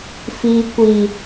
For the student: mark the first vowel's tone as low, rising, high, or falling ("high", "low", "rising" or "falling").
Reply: low